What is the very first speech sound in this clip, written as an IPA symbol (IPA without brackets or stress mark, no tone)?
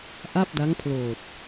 ʔ